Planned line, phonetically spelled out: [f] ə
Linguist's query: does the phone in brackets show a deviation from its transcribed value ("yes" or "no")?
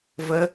yes